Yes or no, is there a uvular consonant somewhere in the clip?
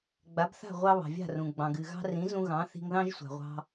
yes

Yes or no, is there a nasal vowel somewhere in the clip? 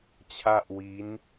no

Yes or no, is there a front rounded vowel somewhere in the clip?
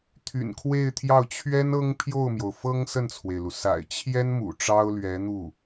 yes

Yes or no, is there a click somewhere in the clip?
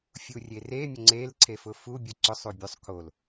yes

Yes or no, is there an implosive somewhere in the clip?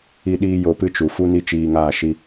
yes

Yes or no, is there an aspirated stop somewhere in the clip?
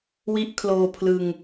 yes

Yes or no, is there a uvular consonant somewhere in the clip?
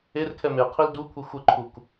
yes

